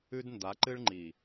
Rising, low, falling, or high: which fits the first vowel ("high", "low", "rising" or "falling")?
high